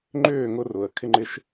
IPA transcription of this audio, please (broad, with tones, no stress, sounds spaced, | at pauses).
ŋ͡ǃ ʏː˦˨ ŋ ʊ˧ r ʊ˨ ə̯ kʰ ɪ˦ ŋ͡ǃ ɪ˦ ʃ